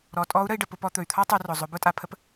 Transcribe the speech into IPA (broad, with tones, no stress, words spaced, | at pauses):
ɾɔ˩˧ tʼɔ˧˥u̯ɾə˧i̯ɖə˩ pʊ˧ pɔ˧t̪ɵ˩y̯t̪ʰɔ˥ tˤʉ˩˧rʊ˩zˤɵ˩˧ bʊ˥tʼa˩˧pʰə˥p